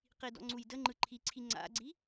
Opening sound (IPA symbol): q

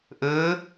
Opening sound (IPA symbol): ʔ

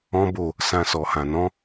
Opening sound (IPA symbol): ɔ̃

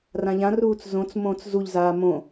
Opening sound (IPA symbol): r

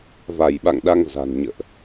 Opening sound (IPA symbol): v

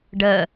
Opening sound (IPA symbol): ɖ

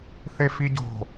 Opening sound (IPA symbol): θ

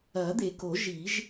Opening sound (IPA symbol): ɐː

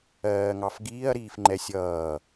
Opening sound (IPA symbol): ɜː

